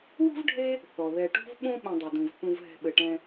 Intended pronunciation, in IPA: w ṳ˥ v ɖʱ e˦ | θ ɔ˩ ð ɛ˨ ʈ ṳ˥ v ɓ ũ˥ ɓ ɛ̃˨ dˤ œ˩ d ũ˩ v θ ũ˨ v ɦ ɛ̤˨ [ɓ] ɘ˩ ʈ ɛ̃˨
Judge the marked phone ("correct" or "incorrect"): correct